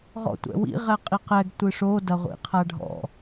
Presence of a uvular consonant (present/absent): present